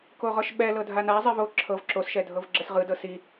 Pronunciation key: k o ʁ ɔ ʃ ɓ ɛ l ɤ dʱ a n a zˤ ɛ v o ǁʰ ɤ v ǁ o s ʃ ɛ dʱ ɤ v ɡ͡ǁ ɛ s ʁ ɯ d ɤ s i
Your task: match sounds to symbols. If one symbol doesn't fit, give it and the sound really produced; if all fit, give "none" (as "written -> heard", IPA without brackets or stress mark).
none